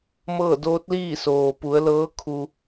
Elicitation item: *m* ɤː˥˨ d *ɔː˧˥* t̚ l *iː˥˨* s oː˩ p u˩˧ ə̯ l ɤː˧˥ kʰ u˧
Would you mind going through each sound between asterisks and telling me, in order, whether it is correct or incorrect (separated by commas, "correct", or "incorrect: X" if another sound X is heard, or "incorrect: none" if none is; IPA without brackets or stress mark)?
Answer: correct, incorrect: oː˧˥, correct